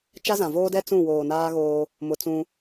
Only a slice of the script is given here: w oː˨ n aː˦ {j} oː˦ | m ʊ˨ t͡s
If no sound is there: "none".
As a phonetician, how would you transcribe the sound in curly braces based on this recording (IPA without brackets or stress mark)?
ɣ